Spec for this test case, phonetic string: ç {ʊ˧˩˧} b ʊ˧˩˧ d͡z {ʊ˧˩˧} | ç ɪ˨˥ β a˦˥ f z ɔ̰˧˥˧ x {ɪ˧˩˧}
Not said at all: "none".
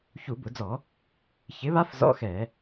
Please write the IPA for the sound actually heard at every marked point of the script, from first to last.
u˧˩˧, ɔ˧˩˧, ɛ˧˩˧

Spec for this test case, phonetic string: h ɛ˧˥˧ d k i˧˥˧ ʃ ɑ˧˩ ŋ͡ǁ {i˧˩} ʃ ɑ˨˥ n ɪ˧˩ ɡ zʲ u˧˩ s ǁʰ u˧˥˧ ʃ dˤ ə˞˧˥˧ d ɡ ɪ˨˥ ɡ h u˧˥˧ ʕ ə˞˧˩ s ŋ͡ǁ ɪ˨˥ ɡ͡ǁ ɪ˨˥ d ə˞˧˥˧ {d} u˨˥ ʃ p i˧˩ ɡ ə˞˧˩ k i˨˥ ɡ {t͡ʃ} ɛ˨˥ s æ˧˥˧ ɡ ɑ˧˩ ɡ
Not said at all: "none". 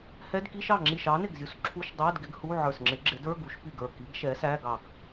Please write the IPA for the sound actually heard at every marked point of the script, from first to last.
i˧˩, ɡ, ʃ

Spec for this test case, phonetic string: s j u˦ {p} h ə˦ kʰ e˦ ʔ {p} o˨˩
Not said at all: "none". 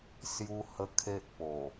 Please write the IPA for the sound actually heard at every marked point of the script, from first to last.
none, p

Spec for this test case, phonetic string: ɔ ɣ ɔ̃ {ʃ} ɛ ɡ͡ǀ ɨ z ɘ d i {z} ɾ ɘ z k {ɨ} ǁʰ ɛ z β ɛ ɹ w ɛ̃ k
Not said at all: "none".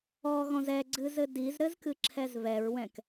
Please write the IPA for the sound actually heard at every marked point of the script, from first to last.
z, z, ɨ

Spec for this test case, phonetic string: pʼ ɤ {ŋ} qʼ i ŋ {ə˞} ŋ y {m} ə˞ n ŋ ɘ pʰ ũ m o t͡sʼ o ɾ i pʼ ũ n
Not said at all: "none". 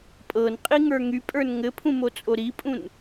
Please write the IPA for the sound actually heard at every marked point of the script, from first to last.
n, ə˞, pʼ

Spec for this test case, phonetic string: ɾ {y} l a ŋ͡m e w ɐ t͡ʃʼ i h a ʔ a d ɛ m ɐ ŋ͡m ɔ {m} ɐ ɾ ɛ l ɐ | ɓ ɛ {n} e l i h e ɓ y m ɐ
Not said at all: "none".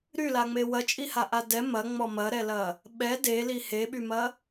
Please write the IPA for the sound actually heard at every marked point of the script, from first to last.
y, m, d

